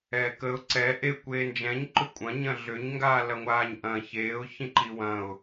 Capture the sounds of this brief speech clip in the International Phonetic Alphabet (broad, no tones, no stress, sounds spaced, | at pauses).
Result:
ɛː k ə ʊ̯ ǀ ɛ ʔ e kʷ eː n d͡ʒ ɛ̃ ɲ ǃ ʏ kʷʼ ɐ̃ ɲ ɐ̃ ɮ ʏ ɲ ŋ ɡ aː l ɐ ŋʷ aː ɲ ʔ ɐ̃ ç eː ʊ̯ ç ĩ ǃ i w ɐ̃ ʊ̯